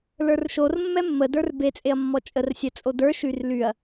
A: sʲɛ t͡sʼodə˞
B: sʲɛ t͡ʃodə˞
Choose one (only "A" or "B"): A